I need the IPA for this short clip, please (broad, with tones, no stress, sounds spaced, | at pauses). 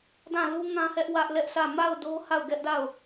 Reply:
d ã˦˨ l u˦ ŋ ã˦ h ɛ˦ ʔ w ä˦ ʔ l ɛ˦ ʔ sʰ ä˦˨ m a˦˨ ʊ̯ d o˦ h a˦˨ ʊ̯ ɡ ɛ˦ ʔ d a˦˨ ʊ̯